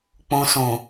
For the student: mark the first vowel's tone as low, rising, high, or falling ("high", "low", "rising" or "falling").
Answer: low